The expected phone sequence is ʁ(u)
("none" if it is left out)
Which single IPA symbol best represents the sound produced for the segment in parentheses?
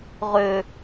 ø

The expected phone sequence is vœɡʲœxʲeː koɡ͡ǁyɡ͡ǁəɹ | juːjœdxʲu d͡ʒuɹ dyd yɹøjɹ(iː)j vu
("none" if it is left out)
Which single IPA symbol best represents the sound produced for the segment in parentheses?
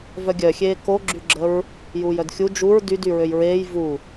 eː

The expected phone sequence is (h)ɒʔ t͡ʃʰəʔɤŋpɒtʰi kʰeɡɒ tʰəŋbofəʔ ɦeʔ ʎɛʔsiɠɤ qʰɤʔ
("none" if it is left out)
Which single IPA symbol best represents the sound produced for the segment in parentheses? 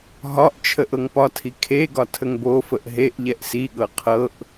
ɦ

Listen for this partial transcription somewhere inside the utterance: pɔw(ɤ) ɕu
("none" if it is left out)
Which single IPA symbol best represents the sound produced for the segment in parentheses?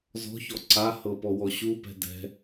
ɔ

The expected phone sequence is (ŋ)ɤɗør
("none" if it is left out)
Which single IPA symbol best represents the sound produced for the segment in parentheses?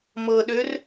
m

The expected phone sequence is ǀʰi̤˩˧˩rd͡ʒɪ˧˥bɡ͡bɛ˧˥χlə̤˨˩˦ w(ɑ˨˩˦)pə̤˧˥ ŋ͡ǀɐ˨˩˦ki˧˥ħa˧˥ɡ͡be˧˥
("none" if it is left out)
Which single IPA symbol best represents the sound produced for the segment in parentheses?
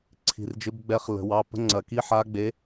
ɑ˩˧˩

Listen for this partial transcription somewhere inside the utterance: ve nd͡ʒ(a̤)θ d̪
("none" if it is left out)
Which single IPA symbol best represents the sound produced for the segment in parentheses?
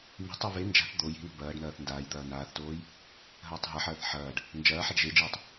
a̤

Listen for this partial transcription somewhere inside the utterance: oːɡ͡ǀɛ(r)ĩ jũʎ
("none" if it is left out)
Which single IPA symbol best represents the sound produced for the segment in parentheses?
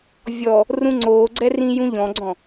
r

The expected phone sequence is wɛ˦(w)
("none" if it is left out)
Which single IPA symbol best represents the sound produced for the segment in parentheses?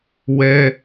none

